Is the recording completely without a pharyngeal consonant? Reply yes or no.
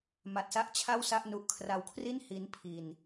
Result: yes